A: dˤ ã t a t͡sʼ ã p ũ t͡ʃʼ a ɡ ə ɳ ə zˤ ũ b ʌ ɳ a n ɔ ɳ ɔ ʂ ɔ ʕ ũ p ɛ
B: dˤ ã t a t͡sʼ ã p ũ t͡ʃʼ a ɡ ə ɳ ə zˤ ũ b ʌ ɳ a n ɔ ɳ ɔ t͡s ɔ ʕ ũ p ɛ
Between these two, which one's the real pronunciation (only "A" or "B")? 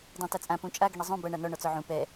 B